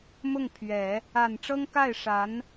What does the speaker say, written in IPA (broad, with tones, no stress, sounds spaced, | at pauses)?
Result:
m ʊ˥˩ ŋ pʰ ɥ ɛ˨˩˦ | a˨˩ n ʈ͡ʂ ɤ˥ ŋ k a˥˩ ɪ̯ ʂ a˧˥ n